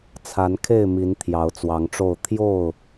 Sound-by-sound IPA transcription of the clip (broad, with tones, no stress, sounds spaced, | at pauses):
t͡sʰ a˨˦ n kʰ e˥˨ ɪ̯ m i˨˦ n t̪ʰ j ɑ˨˦ ʊ̯ t͡s w ɑ˨˦ ŋ ʈ͡ʂ o˥˨ ʊ̯ t̪ʰ j o˥˨ ʊ̯